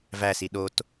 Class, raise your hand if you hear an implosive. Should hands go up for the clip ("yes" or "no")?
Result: yes